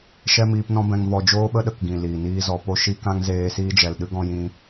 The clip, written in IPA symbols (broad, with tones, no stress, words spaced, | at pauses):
ʃɛ˦miː˧pnɔ̃˦bɛ̃˧ŋ vɔ˧ d͡ʒoː˦ɓə˦ ɗə˨kɡĩ˨ liː˨niː˦zɔ˧ po˧ʃi˧ kã˦ŋzeː˧siː˦d͡ʒɛ˨l ɗɨ˦ɡɔ̃˧jĩ˧